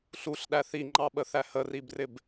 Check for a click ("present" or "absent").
present